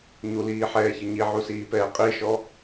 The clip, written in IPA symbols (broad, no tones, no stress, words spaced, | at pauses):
ɲuliːħɛːçə ɲiʕusiːpɛː qʼiʃɔ